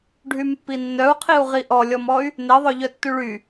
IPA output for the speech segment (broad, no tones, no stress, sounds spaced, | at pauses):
ɖʱ y m pː i nː œ u̯ qʰ i u̯ ʁ i ʔ ɔ lʲ ɔ m ɔ y̯ | n e ðˤ œ ʎ œ tː y ɭ y